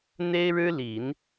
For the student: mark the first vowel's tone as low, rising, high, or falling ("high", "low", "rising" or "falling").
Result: high